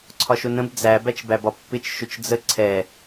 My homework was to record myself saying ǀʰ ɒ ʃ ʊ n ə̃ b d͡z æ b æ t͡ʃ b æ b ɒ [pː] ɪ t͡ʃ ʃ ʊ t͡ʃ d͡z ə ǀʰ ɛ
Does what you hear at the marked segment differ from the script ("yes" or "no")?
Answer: no